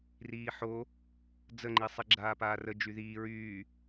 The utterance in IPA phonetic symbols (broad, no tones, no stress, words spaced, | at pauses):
riːħo | d͡zəŋ͡ǃi sˤiɡ͡ǁaːpaːrə d͡ʒyðiː ɹyː